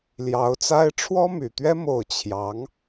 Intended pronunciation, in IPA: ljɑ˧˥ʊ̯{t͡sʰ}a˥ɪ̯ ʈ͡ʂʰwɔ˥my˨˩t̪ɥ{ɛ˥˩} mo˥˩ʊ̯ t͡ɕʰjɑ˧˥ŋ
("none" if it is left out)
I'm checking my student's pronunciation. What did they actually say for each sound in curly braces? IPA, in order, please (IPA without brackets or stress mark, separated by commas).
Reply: t͡s, ɛ˥